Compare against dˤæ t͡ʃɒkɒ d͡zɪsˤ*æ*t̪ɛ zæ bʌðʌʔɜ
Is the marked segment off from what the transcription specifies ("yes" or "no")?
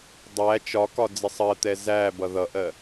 yes